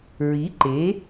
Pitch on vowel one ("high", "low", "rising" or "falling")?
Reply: rising